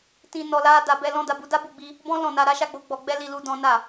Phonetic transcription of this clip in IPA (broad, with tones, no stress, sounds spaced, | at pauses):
t ĩ˧ n ɔ˧ l a˦ d a˧ b ɛ˧ l ɔ̃˦ d a˧ b u˧ d a˦ b u˦˨ ɡ͡b i˧ | b ɔ̃˦ l ɔ̃˦˨ n a˧ ɾ a˦ ʃ a˦ ɡ͡b o˧ ɡ͡b ɔ˧ ɡ͡b ɛ˦ l i˧ l u˧ d ɔ̃˦ n a˦˨